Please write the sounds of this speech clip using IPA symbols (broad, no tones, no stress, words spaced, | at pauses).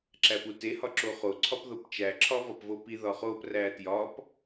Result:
ǁæpute hɒǁoχo ǀʰɒpðopt͡ʃæ ǁʰɒvɒpvopi ðɒχop rætjɒp